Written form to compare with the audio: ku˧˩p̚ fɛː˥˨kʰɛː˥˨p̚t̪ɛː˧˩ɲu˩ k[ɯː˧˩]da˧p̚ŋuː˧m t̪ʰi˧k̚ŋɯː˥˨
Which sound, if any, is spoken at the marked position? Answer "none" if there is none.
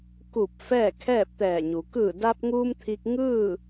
ɯː˧˩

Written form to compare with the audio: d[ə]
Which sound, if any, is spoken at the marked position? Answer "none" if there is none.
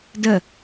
ə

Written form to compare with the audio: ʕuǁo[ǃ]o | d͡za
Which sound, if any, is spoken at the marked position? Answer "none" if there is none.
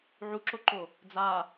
ǃ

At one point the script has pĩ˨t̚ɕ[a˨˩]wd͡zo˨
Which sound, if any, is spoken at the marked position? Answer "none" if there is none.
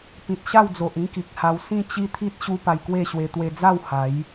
a˥˧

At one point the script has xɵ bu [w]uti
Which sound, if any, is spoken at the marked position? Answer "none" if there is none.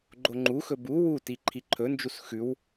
w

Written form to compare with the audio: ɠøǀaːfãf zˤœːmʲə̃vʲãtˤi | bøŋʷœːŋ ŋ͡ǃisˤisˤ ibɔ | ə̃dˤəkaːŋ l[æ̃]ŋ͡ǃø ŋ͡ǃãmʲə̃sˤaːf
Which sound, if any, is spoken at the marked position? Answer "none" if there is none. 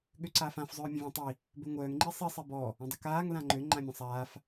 ã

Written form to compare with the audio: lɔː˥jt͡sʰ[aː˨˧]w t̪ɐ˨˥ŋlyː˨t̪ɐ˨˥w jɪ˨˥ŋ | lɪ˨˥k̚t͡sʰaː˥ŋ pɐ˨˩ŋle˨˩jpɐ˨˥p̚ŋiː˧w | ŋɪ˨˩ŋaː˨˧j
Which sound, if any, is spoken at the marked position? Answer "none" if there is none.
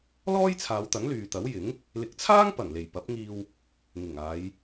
aː˨˧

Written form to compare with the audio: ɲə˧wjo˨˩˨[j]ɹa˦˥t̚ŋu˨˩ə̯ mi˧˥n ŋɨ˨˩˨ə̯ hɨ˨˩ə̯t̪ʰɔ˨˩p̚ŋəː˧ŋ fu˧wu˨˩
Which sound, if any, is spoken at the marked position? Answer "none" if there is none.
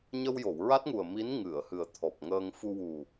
w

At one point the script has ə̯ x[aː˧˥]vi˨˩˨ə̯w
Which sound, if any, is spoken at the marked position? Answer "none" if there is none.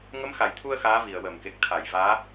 aː˧˥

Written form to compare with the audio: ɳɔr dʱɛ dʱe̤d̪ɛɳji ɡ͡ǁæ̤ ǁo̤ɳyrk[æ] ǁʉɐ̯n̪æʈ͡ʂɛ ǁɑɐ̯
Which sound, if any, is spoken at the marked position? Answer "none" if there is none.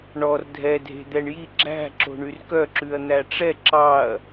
œ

